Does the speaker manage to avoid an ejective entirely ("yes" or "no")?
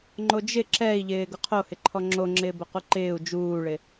yes